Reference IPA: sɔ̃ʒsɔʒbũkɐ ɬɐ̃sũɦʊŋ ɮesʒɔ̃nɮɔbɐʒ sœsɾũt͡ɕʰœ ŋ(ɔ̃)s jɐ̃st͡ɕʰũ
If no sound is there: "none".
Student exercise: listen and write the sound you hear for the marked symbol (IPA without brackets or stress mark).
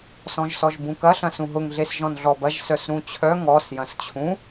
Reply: ɔ